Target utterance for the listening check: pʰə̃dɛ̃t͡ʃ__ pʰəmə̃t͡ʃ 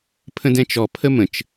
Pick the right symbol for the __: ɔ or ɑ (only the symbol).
ɔ